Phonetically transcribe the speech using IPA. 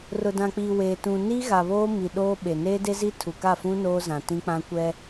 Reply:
rʊ˨dã˨k͡piː˨ weː˨ tũ˨ni˦ ɣa˨βoː˦mi˨ ɗoː˦ɓe˨ neː˦de˦zi˦ tʰu˨ka˦˨fũ˦ noː˦zã˨tĩ˦k͡pã˦ kʷɛ˦

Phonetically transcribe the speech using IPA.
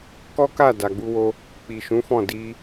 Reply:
kɔ˦ka˦˨ da˨ɡ͡bu˧wo˧ | k͡pi˨ʃũ˨˦fɔ̃˦˨ di˧

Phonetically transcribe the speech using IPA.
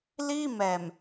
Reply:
liː˥˩mɛː˨˩m

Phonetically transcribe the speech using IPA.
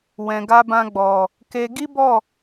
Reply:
wɛ̃˨ɡa˧bã˧ ɡ͡bɔ˨ | ke˧ ɡi˦bɔ˦˨

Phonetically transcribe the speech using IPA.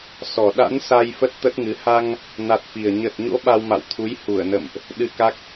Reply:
sɔ˨˩ ɗa̰˧˥nsa˧j fə˦˥t̚t̪ə˦˥t̚ŋɨ˨˦ ha˧ŋ | na˨˩t̚fi˨˩ə̯ ɲə˨˩t̚ɲo̰˧˥ ɓa˧wma̰˧˨wt̪ʰu˨˦j hu˧˩ə̯nə̰˧˨mʔ | ɗɨ˧ka˦˥k̚

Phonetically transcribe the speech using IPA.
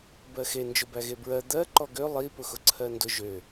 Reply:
bɜxe nd͡ʒʊbæɣebɹɜ d̪ɜ ǃɔɡø lˠi pʊxʊǀʰɜndʊ ʒø

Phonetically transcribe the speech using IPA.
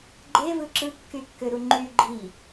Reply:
ɡ͡ǃevɯ ǁɯkːykːøɾu ŋ͡ǃy ɡ͡ǃi

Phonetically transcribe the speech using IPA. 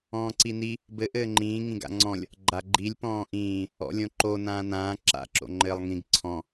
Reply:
ɔ̃ːǀini | bɘ ʔɘːŋ͡ǃĩː ŋĩɡa̰ŋ͡ǀɔ̃lʲ | ɡ͡ǃaɡ͡ǃilʲ pɔ̃ːʔĩː | ɔ̰lʲõǃo nãːnãː ǁa̰ ǁo̰ŋ͡ǃɘːlˠŋĩɡ ǀʰɔ̃

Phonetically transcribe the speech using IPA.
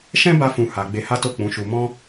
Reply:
ʃɛ̃˦ba˧fũ˨ ha˨ ɡ͡be˧ha˦to˦˨ k͡pũ˨˦ʃu˧ mɔ̃˦

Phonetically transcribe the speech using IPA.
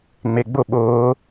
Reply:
ŋ͡meɡ͡bʊ ɓʊː

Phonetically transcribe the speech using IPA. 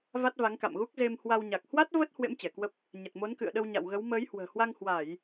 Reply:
va˦˥t̚va˨˦ŋka̰˧˨mɣu˦˥k̚ ze˧m hwa˧wɲa˨˩k̚ hwa˦˥t̚ və˦˥t̚ hwḛ˧˥m t͡ɕɛ˧˩kwə˦˥p̚ | ɲə˨˩t̚mo˨˦n kɨ̰˧˨ə̯ɗə˧wɲa̰˧˨wɣə˨˦w məː˨˦jhwə̤ː˨˩hwa˧ŋhwa˧˩˨j

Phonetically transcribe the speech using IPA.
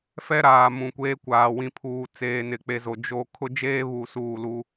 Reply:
fɛ˦ɾaː˨ mũ˨kʷeː˦kʷaː˨ wĩ˨pʰuː˨ t͡seː˨nɪ˨k͡pe˨zo˨ d͡ʒo˦ kʰʊ˦d͡ʒeː˦βu˨ suː˦˨lu˦

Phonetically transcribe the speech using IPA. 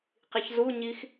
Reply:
qiçzuɲix

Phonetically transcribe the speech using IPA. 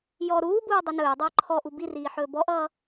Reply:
jɔ ɾuːbuː dˤɵnɵːdˤʌː ǃʰɔʔu biriː ħɵːbɔʔʌː

